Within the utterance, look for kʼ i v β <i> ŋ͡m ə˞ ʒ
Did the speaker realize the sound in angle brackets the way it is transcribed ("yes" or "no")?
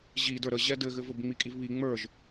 yes